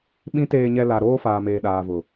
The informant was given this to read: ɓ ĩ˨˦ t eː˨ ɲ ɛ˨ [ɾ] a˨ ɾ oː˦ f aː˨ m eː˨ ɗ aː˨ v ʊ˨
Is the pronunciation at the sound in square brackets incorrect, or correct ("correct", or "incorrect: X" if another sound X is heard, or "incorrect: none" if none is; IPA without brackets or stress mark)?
incorrect: l